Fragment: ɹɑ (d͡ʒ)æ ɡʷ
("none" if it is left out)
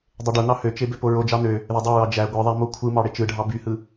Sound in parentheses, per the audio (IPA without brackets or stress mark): d͡ʒ